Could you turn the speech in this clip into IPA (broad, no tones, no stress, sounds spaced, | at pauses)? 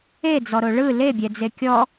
e d͡z ɔ ɾ o ɭ ɯ l e bʲ ɛ d͡z e kʲ ɔ